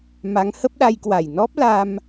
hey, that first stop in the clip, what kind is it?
plain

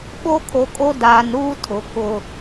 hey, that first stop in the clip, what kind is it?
implosive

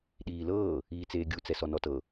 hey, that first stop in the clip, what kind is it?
implosive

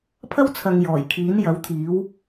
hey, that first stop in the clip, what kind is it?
aspirated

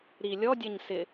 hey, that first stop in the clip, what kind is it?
plain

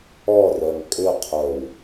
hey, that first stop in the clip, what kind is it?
ejective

